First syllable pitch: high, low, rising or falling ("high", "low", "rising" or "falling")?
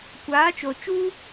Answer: rising